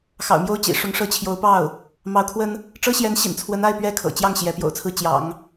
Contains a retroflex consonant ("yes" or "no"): yes